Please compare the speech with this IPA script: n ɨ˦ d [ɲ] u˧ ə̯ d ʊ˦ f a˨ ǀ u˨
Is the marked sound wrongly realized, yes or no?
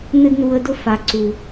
yes